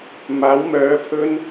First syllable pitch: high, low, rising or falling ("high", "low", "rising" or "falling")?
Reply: rising